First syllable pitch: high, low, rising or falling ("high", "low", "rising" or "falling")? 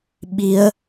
rising